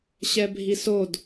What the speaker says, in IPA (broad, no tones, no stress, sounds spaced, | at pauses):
ɕ ɛ bʱ i s o d